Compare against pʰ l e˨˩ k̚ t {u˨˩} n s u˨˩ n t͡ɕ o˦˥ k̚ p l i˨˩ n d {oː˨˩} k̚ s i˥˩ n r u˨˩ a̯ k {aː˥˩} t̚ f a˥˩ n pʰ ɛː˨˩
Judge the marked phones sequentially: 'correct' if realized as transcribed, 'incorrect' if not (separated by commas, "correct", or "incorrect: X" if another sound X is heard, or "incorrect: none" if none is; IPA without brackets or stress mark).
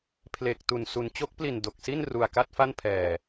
correct, incorrect: o˨˩, incorrect: a˥˩